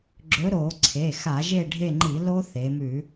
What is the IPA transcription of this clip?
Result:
ɡ͡ǁ ɵ˨˥ ɾ o˧˩˧ ǀʰ e˩˧˩ x a˧˩˧ ʒ e˦˨ ɖʱ e˦˨ ŋ͡ǃ i˧˩˧ l o˦˥ θ e˩˧ m ʉ˧˩˧

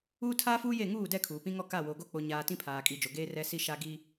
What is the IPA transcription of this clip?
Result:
uː˦ tʰ aː˦ f uː˦ j e˦˨ ŋ uː˦˨ d ɛ˦˨ kʰ uː˨ p ĩ˦ ŋ ɔ˦ k a˦˨ w oː˨ ɡ o˦ k͡p o˦ ɲ aː˦ t ĩ˦ pʰ aː˨ kʼ i˨ d͡ʒ o˨ ɡ eː˦ r ɛ˦ s i˦ ʃ a˦ ɡ i˦

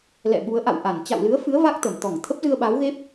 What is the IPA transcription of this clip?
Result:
l ɛ̰˧˨ ɓ u˨˦ ə̯ ʔ a̰˧˨ w ʔ a˧˩ n t͡ɕ a̰˧˨ w l ɨ˨˦ ə̯ f ɨ˨˦ ə̯ v a˦˥ k̚ t̪ ə˧˩ m t̪ ɔ˧˩ ŋ t̪ʰ ə˦˥ p̚ z ɨ˧ ə̯ ɓ aː˨˦ w ɣ e˦˥ p̚

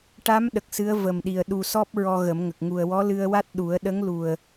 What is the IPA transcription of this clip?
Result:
ʈ a˧˥ m ɗ ə˨˩ k̚ s ɨ˧˥ ə̯ v ə˨˩ m ɗ i˨˩ ə̯ ɗ u˨˩ s ɔ˦˥ p̚ ɹ ɔ˧ ɣ ə˨˩˦ m ŋ ə˨˩ k̚ ŋ u˨˩ ə̯ w ɔ˧˥ l ɨ˧ ə̯ w a˦˥ t̚ ɗ u˨˩˦ ə̯ ɗ ə˧˥ ŋ l u˨˩ ə̯

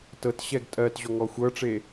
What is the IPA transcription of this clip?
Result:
t ɤ t ɕ ɛ ɡ tʼ ɜ t ʑ ɔ ŋ ɔ xʷ ɤ ʈ͡ʂ e

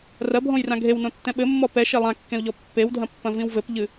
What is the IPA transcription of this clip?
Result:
r ɐ bʱ õ j r ã ɡʱ e w n õ tː ɛ̃ ɓ ɘ mː ɔ p ɛ ʃ e lˠ ã kː ẽ u̯ ʎ ɔ pː e w dʱ ɐ̃ pː ɐ̃ v ĩ w v ɘ p ʎ ɨ

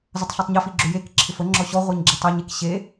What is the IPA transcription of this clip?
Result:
z ə tˤ ɬ e tˤ ɲ ɜ f i ɡ͡ǁ ʏ j e k ǁʰ ɪ f ə ŋ͡ǁ ɔ ɕ ɔ ʁʷ ɜ ɲ ɡ͡ǁ ɪ tˤ ɛ ɲ e k ɕ e

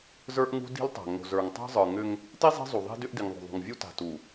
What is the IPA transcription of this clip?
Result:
z ə˞˦ ʔ ŋ ṳ˦ d i̤˦ l tˤ a̤˨ ŋ o̤˨ z ə˞˨ ŋ tˤ a̤˦ zˤ ə˞˨ ŋ ʏ˦ ŋ | t i˦ zˤ i̤˦ zˤ u˨ ðˤ i̤˦ d ʏ˦ ʔ d i˨ ŋ ðˤ o̤˨ ðˤ ṳ˨ ŋ vʲ u˦ t a̤˨ t u˨

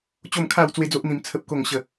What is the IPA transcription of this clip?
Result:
t͡ɕ o˥˧ m kʰ a˥˧ w t͡s w e˦ d͡z o˦ ʔ n̪ ĩ˧ m t͡sʰ ə˦ p̚ k o˥˧ ŋ ɕ ə˥˧

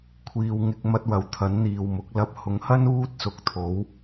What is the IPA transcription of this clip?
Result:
kʷʰ iː˨ w ŋ ɪ˧ k̚ m ɐ˧ t̚ w ɐ˨ w t̪ʰ ɐ˨˥ n n̪ iː˨ w m ʊ˨˥ k̚ l ɐ˧ p̚ h ʊ˨˥ ŋ h ɐ˥ n uː˥ t̚ s ʊ˨˥ k̚ t̪ʰ o˨˥ w

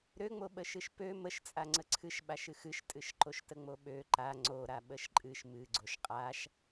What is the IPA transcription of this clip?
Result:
ɾ ø ŋ͡m o ɓ ə ʃ ɨ ʃ p ø m ə ʃ t͡sʼ a ŋ͡ǀ ə ǀʰ ɨ ʃ ɓ a ʃ ɨ x ɨ ʃ tʼ ɨ ʃ ǃ o ʃ t ə ŋ͡m o ɓ ø ǃ a ŋ͡ǀ o ɾ a ɓ ə ʃ ǃʼ ɨ ʃ m ɨ ɡ͡ǀ o ʃ qʼ a ʃ

